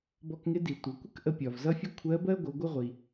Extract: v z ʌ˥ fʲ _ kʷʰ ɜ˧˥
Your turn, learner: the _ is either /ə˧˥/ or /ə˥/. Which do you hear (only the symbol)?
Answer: ə˥